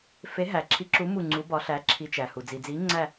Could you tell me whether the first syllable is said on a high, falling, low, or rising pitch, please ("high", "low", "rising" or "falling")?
rising